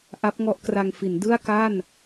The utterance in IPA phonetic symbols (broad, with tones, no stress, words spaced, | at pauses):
ʔa˦˥p̚ŋɔ˦˥ʔkra˧ŋfi˩˦n dɯ˥˩a̯ka˥˩n